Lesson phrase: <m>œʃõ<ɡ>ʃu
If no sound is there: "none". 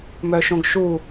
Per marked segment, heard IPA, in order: m, ɡ

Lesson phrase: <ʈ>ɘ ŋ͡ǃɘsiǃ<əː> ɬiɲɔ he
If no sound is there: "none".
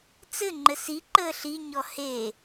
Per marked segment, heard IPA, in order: t͡s, əː

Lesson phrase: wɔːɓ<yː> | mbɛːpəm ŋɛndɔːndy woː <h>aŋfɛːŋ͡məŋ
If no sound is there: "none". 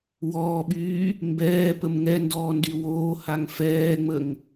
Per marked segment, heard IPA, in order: yː, h

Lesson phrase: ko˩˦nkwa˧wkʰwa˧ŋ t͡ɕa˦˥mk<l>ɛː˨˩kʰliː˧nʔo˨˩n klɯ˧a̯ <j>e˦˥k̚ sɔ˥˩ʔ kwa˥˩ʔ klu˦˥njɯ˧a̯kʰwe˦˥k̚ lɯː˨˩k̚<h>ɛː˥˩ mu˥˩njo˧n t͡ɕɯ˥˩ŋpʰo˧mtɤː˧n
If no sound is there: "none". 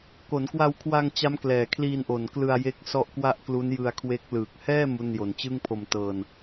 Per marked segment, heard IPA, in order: l, j, h

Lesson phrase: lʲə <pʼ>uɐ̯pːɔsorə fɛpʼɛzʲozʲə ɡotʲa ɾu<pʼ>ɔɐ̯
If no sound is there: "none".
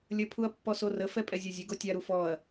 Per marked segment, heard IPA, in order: pʰ, f

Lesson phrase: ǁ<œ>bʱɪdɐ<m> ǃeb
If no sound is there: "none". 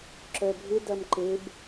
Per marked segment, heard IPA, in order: œ, m

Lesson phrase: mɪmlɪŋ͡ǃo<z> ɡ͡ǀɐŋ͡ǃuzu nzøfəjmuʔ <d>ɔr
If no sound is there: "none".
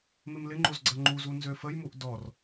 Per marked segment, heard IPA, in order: z, d

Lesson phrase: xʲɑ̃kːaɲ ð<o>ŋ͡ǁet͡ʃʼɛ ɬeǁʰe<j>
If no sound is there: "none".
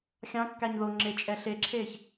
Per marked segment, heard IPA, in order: o, ç

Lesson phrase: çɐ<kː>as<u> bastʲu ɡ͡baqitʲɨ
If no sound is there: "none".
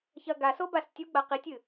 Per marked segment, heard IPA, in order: ɡ, o

